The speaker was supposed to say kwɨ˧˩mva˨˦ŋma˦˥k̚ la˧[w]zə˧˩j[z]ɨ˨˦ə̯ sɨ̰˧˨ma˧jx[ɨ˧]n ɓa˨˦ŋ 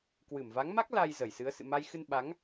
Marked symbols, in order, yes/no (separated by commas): no, no, yes